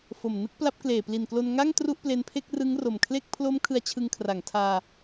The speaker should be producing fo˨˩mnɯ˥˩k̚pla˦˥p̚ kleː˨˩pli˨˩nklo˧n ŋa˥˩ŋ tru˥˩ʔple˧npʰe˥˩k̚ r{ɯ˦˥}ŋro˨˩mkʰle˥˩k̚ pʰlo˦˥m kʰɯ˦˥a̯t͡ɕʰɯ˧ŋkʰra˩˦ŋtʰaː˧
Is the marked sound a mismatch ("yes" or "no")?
no